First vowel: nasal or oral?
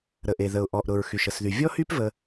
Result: oral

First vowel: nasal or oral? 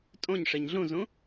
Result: nasal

